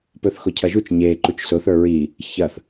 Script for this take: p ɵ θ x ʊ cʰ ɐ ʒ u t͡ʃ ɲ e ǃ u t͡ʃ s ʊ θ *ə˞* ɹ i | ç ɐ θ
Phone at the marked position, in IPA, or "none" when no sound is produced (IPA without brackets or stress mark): ə˞